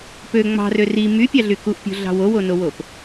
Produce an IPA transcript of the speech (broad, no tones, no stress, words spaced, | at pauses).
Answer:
pø ŋ͡mɑ̤rø ri mypʲɑɮy kuʔpʲo̤ɮɑ̤ wowonowop